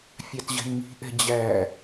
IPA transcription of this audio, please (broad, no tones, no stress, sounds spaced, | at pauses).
fʲ ɑ t ʑ ɛ̤ n m i̤ ʔ ɛ̤ d͡ʑ æ